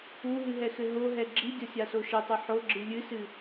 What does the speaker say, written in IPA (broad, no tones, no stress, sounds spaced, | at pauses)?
u ɦ ɨ ɦ ɛ x ɘ ɦ o ɦ ɛ ɡ͡ǁ i dʲ ɔ sʲ a s o ʃ ɐ tˤ ɨ ħ o ɡ͡ǁ ɨ lʲ ɨ s ɨ